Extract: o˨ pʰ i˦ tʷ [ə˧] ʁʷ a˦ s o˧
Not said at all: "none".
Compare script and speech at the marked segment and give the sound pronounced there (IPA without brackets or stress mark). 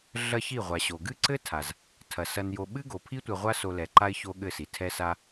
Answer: ɐ˧